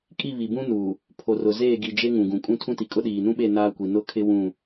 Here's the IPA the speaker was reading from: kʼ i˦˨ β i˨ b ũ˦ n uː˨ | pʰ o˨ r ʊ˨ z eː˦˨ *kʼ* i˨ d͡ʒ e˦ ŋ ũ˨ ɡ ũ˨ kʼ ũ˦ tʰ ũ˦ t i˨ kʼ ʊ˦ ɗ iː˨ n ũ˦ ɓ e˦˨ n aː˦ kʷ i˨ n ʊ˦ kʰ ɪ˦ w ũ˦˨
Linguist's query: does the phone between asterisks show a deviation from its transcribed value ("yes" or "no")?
yes